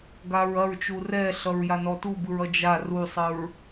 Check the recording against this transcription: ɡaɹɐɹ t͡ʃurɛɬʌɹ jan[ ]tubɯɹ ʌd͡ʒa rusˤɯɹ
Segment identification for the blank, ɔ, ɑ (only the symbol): ɔ